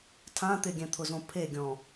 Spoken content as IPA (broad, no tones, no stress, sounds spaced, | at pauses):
tʰ ã t̪ ɪ ɡʲ ɛ̃ t̪ʰ ʊ z õ pʰ e ɡʲ ɔ̃